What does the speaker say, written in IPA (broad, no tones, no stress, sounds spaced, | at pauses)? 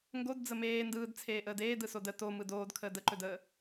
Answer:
ŋ ɡ o d d͡z ə m eː n d ɯː d t͡sʰ eː ʔ əː d eː d ɯ s o d ə t o m ɯ d oː d kʰ əː d ə ǃ ɵ d əː